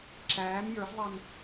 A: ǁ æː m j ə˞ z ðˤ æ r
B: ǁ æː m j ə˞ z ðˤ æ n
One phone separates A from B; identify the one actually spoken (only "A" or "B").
B